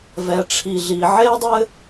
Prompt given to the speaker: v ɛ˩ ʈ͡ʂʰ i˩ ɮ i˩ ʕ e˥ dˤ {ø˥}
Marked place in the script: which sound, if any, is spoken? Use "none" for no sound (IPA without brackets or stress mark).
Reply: ɘ˥